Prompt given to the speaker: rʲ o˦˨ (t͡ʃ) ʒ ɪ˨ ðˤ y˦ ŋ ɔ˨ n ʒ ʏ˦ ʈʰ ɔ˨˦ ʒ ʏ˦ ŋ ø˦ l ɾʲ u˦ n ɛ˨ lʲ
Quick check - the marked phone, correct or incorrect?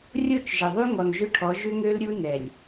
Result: correct